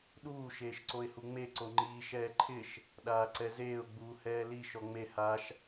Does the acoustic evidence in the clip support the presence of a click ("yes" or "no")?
yes